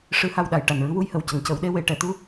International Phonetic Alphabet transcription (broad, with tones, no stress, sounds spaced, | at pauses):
ʂ ɨ˧˥ h a˧ w ɗ a˨˩˨ j ʈ a˨˩ n ɹ ɨ˧˥ w u˧˥ j h ə˨˩˨ w c ə˨˩˦ ŋ c ə˨˩˦ w ɗ e˧˥ w e˨˩˨ ʈ ɛ˨˩˨ t̪ u˧